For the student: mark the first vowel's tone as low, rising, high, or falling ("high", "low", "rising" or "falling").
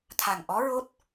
low